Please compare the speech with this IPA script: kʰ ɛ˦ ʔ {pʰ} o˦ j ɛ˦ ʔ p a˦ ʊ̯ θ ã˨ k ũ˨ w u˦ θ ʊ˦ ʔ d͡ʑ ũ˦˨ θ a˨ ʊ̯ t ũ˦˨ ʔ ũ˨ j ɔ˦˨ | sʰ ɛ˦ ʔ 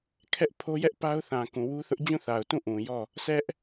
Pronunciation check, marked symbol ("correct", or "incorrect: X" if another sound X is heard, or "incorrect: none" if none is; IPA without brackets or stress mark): correct